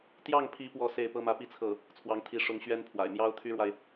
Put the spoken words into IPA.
t̪ j ɑ˥˩ ŋ pʰ i˧˥ p w ɔ˥˧ s e˥˩ ɪ̯ p ɤ˥ m ä˥ p i˥˧ t͡sʰ ɤ˥˩ | t͡sʰ w ɑ˧˥ ŋ t̪ʰ i˧˥ ʂ ʊ˧˥ ŋ ɕ ɥ ɛ˥ n pʰ w a̰˨˩ ɪ̯ m j ɑ˥ ʊ̯ t̪ʰ y˥ ɻ w a˨ ɪ̯

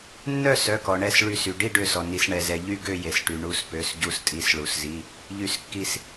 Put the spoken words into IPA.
nː œ˥˨ s œ˩˧˩ k ɔ˩ ɳ ɛ˧˩ s ɭ y˧˩ s y˩ ɖ i˥˨ ɖ ø˧˩ s ɔ˩ n i˩ s ɳ ɛ˩ z ɛ˩ ʎ y˥˨ ɡ ø˥˨ j e˩ s ʈ y˩ ɳ u˧˩ s p ø˩˧˩ s ɟ u˧˩ s tʼ i˩˧˩ s ɭ u˩ s z i˩˧˩ | ʎ y˧˩ s kː i˧˩ s

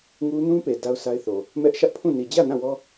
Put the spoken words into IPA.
ŋ u˦ n ũ˦ p e˨ d a˦ ʊ̯ sʰ a˦ ɪ̯ θ o˨ | m ɛ˦ ʔ ʃ ä˦ ʔ pʰ ũ˦˨ n i˨ d͡ʑ ä˦˨ n ã˦˨ w ɔ˦

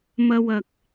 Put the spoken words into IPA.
m ɐ˧ w ɐ˨ k̚

